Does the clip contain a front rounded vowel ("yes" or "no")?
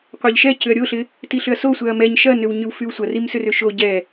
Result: yes